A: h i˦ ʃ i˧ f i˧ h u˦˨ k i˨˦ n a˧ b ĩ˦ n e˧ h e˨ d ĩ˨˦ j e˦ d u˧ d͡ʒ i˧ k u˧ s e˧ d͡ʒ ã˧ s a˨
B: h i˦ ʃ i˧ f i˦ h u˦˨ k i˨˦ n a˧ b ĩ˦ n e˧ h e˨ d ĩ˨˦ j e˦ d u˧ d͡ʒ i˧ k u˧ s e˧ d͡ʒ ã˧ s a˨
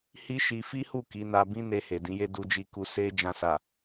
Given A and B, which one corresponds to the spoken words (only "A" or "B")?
B